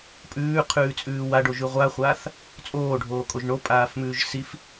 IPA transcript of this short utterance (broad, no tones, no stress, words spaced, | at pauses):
pʼʉːqʰʉːt͡sʼʉː waɖoʒʉ ʁʷaχʷaːθ | t͡sʼoːɖʱoːkʼoʒ ɳopʼaːfmʉːʒ sif